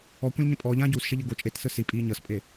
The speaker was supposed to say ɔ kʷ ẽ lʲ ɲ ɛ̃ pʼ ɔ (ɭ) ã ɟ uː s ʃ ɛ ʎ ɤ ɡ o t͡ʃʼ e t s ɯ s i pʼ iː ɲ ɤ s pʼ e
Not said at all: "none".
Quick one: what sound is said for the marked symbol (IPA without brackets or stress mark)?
ʎ